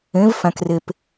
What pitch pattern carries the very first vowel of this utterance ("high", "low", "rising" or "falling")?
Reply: rising